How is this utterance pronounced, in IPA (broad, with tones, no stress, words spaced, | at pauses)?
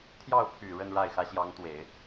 t̪ʰjɑ˥˩ʊ̯pʰy˨˩ ɻə˥˧nɻa˥˩ɪ̯xä˧˥ ɕjɑ˧˥ŋt̪we˨˩˦ɪ̯